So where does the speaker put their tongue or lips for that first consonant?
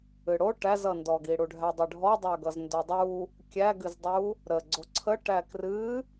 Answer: retroflex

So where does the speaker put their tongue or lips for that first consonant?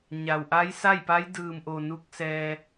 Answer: palate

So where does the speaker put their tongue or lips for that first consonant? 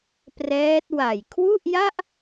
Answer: lips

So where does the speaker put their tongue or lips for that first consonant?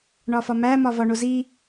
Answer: retroflex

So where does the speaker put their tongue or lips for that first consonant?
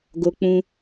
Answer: velum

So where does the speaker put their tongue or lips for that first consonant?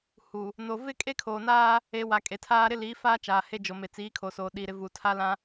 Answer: throat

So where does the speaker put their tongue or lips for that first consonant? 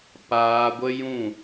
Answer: lips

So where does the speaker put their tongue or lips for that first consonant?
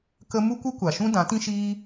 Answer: velum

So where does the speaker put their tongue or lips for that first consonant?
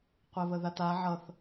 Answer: uvula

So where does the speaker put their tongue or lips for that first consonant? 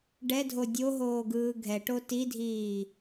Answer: retroflex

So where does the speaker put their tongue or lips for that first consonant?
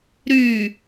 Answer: tongue tip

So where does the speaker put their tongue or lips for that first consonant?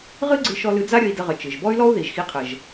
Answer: uvula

